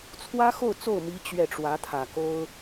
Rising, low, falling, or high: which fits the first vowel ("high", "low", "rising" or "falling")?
high